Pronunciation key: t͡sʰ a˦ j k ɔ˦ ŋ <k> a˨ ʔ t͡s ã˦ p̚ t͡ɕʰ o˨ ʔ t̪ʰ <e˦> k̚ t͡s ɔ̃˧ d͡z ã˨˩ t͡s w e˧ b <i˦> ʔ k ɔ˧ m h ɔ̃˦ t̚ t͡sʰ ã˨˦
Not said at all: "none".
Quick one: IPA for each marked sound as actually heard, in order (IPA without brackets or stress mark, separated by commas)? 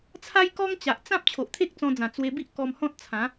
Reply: t͡ɕ, e˦, i˦